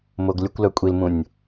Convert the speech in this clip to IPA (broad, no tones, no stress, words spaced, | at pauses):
moɡlʲʊkʷlœ kʷʼilmũnʲ